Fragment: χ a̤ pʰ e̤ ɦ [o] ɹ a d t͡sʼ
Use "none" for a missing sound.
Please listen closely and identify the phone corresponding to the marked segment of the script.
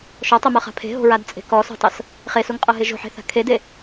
o̤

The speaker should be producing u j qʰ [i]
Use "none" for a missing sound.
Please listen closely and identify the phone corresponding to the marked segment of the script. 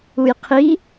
i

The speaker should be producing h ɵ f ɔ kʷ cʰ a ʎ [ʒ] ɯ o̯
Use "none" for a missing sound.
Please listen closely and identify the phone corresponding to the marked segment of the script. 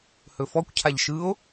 ʃ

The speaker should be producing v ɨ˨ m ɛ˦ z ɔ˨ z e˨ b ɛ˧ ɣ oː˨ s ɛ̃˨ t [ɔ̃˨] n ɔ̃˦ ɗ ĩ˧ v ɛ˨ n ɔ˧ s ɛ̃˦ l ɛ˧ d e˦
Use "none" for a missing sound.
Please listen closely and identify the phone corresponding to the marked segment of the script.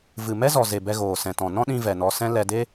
ɔ̃˨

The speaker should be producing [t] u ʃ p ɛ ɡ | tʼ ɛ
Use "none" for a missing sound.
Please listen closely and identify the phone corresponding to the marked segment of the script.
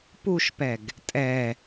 p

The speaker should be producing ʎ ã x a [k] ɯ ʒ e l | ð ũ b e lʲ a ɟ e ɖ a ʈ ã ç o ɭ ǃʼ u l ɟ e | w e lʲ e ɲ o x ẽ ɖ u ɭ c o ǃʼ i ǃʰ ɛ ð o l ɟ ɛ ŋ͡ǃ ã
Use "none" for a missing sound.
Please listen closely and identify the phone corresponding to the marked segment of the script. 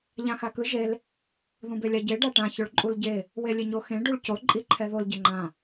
k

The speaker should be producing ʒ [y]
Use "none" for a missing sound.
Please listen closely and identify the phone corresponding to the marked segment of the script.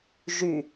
y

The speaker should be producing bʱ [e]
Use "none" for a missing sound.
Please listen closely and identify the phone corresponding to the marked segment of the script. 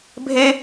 e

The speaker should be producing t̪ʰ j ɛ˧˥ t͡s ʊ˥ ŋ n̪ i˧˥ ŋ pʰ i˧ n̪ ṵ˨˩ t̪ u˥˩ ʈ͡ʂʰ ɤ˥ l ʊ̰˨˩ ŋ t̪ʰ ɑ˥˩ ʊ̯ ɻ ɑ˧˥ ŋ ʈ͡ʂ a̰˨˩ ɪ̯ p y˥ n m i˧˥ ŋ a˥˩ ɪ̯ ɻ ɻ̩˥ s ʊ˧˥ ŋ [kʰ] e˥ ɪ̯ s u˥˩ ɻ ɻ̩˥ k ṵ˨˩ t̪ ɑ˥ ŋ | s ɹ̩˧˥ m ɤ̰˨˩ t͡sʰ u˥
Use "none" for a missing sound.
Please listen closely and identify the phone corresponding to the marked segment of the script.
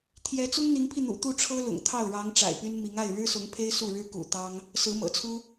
pʰ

